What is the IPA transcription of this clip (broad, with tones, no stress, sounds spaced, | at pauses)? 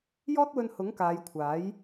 j ɔː˥ t̚ w ɵ˧ n h ʊ˨˥ ŋ k aː˨˧ j kʷʰ aː˨˥ j